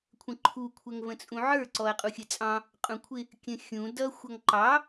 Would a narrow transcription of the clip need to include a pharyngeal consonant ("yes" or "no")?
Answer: yes